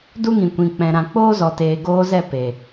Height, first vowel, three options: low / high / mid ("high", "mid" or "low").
high